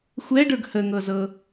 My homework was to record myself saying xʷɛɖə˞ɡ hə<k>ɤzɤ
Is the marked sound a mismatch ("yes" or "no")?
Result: yes